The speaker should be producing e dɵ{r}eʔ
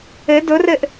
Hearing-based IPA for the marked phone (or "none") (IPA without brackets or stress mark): r